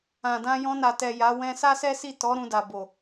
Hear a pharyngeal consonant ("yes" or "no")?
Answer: no